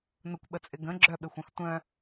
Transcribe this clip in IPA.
n ʊ kʷ ɓ ə t͡sʼ ɪ ɡ ə̃ ɡ͡ǁ œ ɓ ɪ xʷ œ̃ x tʷ œ̃

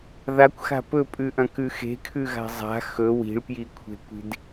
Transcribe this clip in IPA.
ð a kʷ x a̤ p ɵ pʼ ʉ ʔ ɐ̃ k ʉ x e̤ kʰ ʉ ɣ a̤ zˤ a̤ x ɵ w i̤ ɭ p j i kʷʰ e̤ kʷ i̤ d

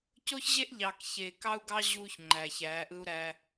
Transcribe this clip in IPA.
c o˦ ç ʑ e˦ ʔ ʎ ɑ˨ k ç e˨ k ɑ˦ u̯ ɡ ɑ˦ ʑ uː˦ ç ŋ͡ǃ æ˨ ç æː˨˦ ʔ ɯ˦ u̯ ɾ æ˦

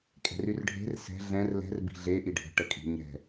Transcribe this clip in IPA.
kʼ ɛ̤ r y r ɖʱ e̤ r s ɛ̤ ɮ ɛ̃ r l ɛ̤ r b i̤ ɮ e ʔ i ɖʱ ə̤ ʈ ə kʼ i̤ ɲ ɛ̤

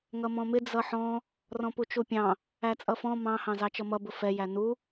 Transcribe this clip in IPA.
ŋ ʌ m ɔ̃ m ɪ d͡z ʌ ħ ɔ̃ | r ɔ̃ p u t͡ʃ u pʲ ɑ̃ | æ t͡sʼ ʌ f ɔ̃ m ɑ̃ h ɑ̃ z ɑ t͡ʃ ʌ m ʌ b ʊ f ɛ j æ n u

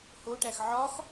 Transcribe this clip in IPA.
h o ʈ æ x ʕ ɒ x

